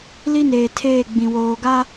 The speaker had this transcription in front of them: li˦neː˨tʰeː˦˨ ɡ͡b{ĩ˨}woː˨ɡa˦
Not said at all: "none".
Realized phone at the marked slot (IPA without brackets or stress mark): ĩ˨